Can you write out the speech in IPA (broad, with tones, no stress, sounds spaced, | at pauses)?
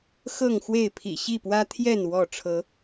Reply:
x ɤ˥˨ ŋ x w e˥˨ ɪ̯ pʰ ḭ˨˩ ɕ i˥˨ p w ä˦ t̪ʰ j ɛ˥˨ n w ɔ˥˨ ʈ͡ʂʰ ɤ˨˦